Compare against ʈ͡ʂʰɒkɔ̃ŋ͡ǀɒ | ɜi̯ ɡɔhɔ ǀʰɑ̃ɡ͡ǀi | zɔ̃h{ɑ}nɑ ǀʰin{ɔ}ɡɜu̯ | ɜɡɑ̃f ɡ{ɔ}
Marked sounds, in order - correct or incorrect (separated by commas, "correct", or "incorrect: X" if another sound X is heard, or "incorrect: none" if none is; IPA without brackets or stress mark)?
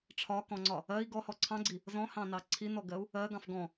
incorrect: ɑ̃, correct, incorrect: ɔ̃